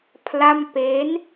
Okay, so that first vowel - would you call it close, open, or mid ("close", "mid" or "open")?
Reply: open